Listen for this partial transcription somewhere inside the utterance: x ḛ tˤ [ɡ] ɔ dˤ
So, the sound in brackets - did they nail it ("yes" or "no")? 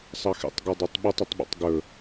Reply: yes